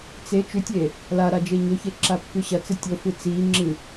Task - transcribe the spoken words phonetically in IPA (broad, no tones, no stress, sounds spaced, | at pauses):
t͡s e t͡ʃ ʉ tʲ e | l a ɾ a d͡ʒ e ɲ ɵ ç e ǁ a pː ʉ ɕ ɐ t͡s ɨ tʲ o f ɨ t͡s i ŋ͡ǁ ɨ